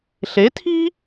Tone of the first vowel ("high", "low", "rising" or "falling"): rising